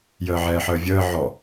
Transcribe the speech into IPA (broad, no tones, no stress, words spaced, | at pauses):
jəːʕɛːħəːvʲəː ʕɔ